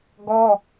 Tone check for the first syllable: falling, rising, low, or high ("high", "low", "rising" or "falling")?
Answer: high